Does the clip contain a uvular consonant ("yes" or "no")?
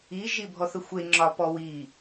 no